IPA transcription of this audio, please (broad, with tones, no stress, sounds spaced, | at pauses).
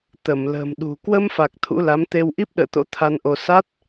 t̪ ə˧˩ m l ə̤ː˨˩ m ɗ ṳ˨˩ k w ə˧ m f a˨˩ k̚ t̪ʰ ṵ˧˥ l a˨˦ m t̪ e˧ w ʔ i˦˥ p̚ ɗ ə̰ː˧˨ t̪ o̰˧˥ t̪ʰ a˧ n ʔ o˧ s a˦˥ t̚